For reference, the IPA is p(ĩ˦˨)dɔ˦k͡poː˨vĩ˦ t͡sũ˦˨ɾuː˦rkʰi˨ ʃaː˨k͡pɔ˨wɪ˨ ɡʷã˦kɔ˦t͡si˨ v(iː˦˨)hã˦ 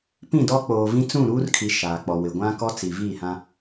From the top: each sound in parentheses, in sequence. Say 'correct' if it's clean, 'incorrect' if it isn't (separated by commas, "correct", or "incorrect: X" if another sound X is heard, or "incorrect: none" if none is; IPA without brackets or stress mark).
correct, correct